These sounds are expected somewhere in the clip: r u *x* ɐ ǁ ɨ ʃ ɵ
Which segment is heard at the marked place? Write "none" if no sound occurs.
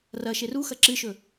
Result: x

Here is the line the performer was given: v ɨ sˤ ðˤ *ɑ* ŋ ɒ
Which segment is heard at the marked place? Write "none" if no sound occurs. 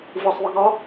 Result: ə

